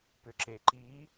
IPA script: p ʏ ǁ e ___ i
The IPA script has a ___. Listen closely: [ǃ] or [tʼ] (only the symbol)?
ǃ